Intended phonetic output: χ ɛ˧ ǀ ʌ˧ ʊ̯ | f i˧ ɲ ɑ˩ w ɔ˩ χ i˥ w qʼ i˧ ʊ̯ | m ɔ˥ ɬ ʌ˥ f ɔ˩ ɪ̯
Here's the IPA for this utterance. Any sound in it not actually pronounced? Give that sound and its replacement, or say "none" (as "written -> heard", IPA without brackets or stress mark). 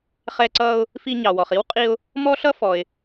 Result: none